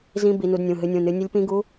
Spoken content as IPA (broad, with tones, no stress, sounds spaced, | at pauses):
z ĩ˦˥ b i˦˥ n u˦˥ d nʲ ũ˧˥˧ ɦ ɨ˦˥ nʲ ũ˧˥˧ n ɨ˦˥ nʲ ə˦˥ lʲ p ĩ˦˥ ɡ u˦˥